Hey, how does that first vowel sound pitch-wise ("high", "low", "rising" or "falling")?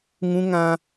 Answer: high